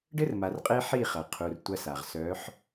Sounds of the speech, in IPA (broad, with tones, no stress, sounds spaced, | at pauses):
ɖ ɘ˦ r m a˨ r qʼ e˦ ħ i˦˨ χ ɐ˨ qʰ u˨ r tʷ ɐ˦ s a˨ ʁ s œ˨˦ ħ